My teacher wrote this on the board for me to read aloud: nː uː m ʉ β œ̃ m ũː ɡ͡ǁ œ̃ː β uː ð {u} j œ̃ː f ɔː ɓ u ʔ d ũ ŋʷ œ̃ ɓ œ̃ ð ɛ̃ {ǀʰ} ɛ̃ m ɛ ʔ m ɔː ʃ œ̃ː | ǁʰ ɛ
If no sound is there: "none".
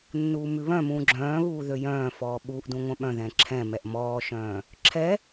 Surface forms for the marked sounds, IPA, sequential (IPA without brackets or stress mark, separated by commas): ø, ǁʰ